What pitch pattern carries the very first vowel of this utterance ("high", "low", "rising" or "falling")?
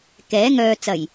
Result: rising